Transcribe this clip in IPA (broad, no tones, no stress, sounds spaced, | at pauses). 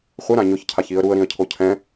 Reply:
χʷ ɪ ɾ ã ɲ ʊ ç cʰ a ç i ə̯ ɾ u ə̯ ɾ ĩ ə̯ cʰ o cʰ ɛ̃